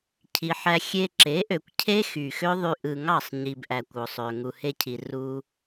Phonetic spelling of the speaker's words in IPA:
cʰ i˨ ħ æ˧ xʲ e˧ ǁ e˨˦ ʔ ø˨ kʷ cʰ e˦ x y˨ x ø˦ ðˤ y˧ ʔ ɯ˨ ŋ ɑ˦˨ sˤ ɲ i˨ b ʔ æ˨ kʷ o˨ sˤ ø˨ ŋ u˨ h e˧ cʰ i˨ r u˧

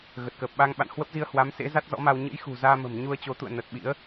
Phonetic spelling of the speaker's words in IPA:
ɣ ə˨˩ t̚ k əː˨˩ p̚ ɓ a˧ ŋ ɓ a̰˧˨ n h w ə˦˥ p̚ z i˧ ə̯ h w a˨˦ m s ḛ˧˥ z a˦˥ t̚ z ɔ̰˧˥ m a˧ w ɲ ɨ̰˧˥ j x ṳ˨˩ z aː˧ m ə̤˨˩ m ɲ u˧ ə̯ t͡ɕ o˨˦ t̪ ṵ˧˨ ə̯ n ə˨˩ t̚ ɓ ḭ˧˥ ə̯

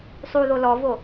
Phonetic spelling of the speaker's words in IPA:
sˤ u ð o l ɔ v o

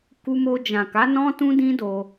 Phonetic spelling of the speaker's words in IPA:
k u˧ m o˧ d͡ʒ ã˨ k a˨˦ n ɔ̃˦ t ũ˦ d ĩ˦ d o˧

